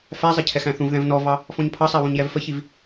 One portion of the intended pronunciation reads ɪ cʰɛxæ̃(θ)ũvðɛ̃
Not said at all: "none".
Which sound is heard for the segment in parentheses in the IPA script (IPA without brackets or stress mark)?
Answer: θ